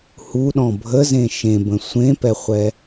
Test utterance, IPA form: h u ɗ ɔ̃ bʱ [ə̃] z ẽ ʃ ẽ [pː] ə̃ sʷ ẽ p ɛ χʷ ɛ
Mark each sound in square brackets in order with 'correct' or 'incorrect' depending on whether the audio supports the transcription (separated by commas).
incorrect, incorrect